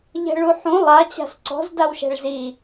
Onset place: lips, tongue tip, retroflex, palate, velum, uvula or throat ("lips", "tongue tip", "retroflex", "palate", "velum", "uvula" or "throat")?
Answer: palate